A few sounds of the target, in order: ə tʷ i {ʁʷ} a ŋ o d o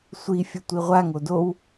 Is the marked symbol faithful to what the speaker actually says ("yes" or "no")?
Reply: yes